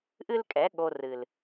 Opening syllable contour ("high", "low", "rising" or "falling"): high